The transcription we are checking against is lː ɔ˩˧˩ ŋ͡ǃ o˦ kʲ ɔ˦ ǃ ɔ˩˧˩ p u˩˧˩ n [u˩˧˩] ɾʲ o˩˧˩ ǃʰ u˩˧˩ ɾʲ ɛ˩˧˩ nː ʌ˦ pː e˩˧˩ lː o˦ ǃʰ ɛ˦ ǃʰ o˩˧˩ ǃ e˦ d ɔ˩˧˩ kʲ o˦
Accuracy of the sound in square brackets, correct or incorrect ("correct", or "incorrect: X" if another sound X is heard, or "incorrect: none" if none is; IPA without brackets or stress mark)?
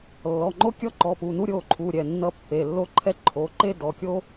incorrect: u˦